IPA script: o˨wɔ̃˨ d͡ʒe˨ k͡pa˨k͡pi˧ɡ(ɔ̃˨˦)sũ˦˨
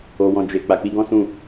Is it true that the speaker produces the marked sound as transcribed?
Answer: no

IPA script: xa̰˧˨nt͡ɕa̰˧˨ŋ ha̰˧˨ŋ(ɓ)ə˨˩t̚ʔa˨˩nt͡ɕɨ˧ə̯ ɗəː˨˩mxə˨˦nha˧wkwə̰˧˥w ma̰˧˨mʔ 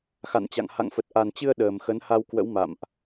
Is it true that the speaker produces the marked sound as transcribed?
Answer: no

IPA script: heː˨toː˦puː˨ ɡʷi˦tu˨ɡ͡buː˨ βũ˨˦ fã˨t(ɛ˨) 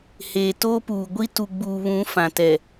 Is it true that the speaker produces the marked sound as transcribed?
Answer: yes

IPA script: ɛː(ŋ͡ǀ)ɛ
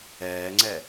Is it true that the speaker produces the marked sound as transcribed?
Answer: yes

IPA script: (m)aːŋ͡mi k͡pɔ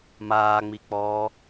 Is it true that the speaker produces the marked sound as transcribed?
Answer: yes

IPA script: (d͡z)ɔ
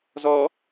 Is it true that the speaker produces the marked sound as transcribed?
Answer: no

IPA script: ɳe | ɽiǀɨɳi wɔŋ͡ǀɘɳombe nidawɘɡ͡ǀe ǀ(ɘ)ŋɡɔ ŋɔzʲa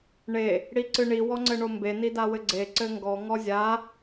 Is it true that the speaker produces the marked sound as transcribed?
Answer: yes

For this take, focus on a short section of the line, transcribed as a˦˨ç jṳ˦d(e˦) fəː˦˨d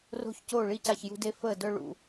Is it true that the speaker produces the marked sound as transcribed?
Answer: yes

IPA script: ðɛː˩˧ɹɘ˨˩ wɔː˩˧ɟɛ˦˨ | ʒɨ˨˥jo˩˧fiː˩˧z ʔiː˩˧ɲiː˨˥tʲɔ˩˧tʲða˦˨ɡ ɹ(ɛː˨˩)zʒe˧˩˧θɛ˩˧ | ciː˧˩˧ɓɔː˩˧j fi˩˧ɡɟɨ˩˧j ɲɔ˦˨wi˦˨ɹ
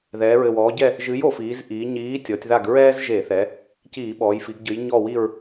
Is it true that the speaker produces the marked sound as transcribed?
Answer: no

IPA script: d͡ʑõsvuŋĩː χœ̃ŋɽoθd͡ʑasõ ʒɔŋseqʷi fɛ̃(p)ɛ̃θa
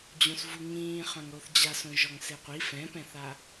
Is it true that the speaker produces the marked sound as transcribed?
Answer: yes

